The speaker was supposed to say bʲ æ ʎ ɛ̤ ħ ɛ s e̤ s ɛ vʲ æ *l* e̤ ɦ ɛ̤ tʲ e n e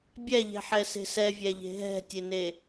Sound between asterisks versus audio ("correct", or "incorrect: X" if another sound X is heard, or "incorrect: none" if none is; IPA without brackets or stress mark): incorrect: ʎ